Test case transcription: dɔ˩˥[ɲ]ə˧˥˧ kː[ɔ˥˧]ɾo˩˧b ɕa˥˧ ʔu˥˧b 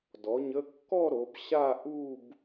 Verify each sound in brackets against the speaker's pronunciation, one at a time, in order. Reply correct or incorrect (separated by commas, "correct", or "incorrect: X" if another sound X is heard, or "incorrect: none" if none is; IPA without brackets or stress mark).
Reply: correct, correct